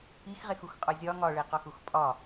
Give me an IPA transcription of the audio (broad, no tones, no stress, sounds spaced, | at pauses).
i x ʁ e x u x qʼ ɒ zʲ ɒ ŋ ɒ ɭ e q ɒ x u x pʼ ɒ